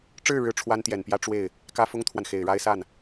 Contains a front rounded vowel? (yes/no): no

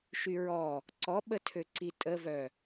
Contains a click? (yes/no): yes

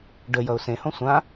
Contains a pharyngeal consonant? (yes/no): no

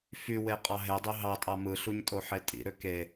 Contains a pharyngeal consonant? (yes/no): yes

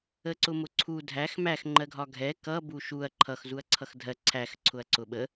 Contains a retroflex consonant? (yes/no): no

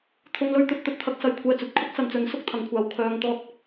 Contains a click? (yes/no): no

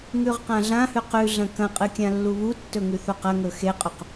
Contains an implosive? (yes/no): no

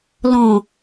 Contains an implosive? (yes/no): no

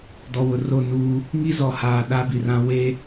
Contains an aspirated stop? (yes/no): no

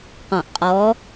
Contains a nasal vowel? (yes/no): yes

